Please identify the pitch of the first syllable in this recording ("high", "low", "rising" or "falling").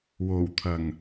low